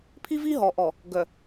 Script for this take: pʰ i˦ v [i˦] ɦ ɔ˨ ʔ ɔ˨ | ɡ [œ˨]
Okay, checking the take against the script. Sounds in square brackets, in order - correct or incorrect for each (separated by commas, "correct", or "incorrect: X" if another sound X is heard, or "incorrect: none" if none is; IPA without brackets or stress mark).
correct, correct